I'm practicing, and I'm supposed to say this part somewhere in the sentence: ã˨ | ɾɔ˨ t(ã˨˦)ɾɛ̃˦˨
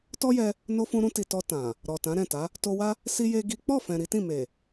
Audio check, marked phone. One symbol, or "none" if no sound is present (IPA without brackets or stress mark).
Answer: ã˨˦